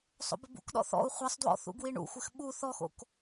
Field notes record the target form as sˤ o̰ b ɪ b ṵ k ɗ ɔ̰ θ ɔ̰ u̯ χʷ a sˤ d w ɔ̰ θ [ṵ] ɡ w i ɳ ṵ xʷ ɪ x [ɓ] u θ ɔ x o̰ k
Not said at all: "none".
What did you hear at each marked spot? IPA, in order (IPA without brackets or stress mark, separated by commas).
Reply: ṵ, ɓ